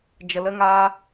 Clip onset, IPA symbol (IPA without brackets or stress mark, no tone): d͡ʒ